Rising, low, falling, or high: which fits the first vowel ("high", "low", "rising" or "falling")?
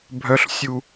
low